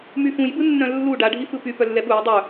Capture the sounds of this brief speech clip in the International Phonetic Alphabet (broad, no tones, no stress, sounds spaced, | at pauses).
m y f ũ j b ɯ nː œ̃ lː u ɖ a ɖʱ i f ɯ p y p œ lː ɛ ɓ u j dˤ œ